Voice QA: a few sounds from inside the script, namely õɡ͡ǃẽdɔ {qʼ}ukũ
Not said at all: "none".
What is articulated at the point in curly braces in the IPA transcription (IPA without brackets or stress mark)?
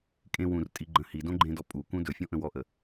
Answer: pʼ